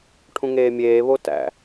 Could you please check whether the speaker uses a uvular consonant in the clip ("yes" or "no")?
no